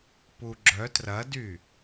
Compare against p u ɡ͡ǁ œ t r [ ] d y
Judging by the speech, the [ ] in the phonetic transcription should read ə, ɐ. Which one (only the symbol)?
ɐ